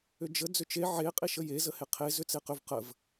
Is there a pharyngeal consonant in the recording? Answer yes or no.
yes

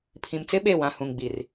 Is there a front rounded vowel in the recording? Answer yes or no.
no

